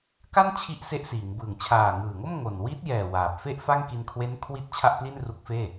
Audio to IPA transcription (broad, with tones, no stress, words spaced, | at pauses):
ka˥˩nt͡ɕʰi˦˥ʔ se˦˥ʔsiː˩˦ŋbɯː˨˩ŋ t͡ɕʰaː˨˩ŋɯː˨˩ŋo˥˩m ŋo˨˩n wi˦˥t̚jɛː˨˩ waː˨˩p̚ fe˥˩ʔfa˥˩ŋki˧n kʰwe˦˥nkʰwi˦˥t̚ t͡ɕʰa˥˩ʔpli˥˩nru˦˥k̚feː˥˩